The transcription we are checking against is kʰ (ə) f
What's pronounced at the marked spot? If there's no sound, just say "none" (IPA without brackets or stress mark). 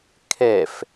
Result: ɛ